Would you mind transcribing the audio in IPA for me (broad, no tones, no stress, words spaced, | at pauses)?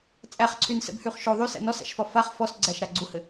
t͡sʼæχǀʰynsɛ̰bhyχ ʃo ðˤysæ̰ nɔsæ̰ʃfɒ faχ fɔsɡ͡ǀæʃɾa ɡ͡ǀuhɘ